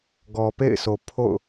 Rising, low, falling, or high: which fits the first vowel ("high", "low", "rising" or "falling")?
low